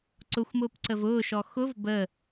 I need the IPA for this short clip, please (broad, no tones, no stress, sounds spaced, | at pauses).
ǀ ʊ xʷ m ʊː p ǀ ə v ʊː ʃ ɔ x ʊ v b ə